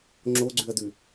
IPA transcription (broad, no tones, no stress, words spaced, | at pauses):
ŋ͡ǁoɡ͡ǀʉɐ̯dʉ